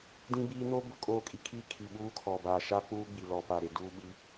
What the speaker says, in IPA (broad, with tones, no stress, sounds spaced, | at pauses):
d ĩ˦ b iː˦ n o˦ b ʊ˦ kʼ oː˦˨ kʼ i˦ kʰ i˦ kʰ i˨ ɓ uː˦ kʰ ɔ˨ b aː˨ ʃ a˦ k͡p uː˦ ɡ͡b i˨ l ɔ˨ p a˨ ɾ e˨ d uː˦ ɓ i˦